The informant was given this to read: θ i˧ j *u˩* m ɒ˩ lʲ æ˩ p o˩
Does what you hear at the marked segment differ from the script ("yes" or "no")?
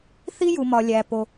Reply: no